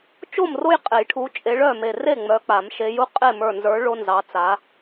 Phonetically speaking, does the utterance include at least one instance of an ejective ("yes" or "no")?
yes